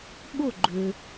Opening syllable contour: falling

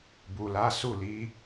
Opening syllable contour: low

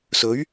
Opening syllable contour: rising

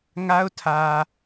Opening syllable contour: high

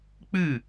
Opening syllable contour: falling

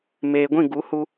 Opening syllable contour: low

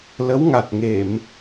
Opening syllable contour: rising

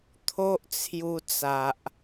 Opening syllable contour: high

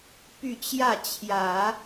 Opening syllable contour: falling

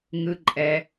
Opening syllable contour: low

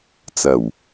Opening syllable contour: low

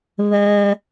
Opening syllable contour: low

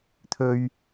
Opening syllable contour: high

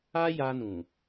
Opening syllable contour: high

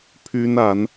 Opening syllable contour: high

